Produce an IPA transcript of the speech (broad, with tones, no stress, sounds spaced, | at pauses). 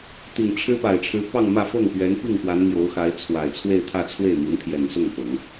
t̪ i˨˩ ŋ ʈ͡ʂʰ ɻ̩˥ p a˨˩ ɪ̯ ʈ͡ʂʰ ɻ̩˧˥ p ɑ˥˧ ŋ m ä˥˧ f ɤ˥˩ ŋ p ɥ ɛ˧˥ n p i˥˩ ŋ p w a˧˥ n m j o˧˥ ʊ̯ x a˧˥ ɪ̯ t͡sʰ w a˨˩ ɪ̯ t͡sʰ w e˥˧ ɪ̯ t̪ʰ ä˥˧ t͡sʰ w e˥˩ ɪ̯ m i˧˥ n pʰ j ɛ˨˩ n s ʊ˥˩ ŋ p ɤ˨˩˦ ŋ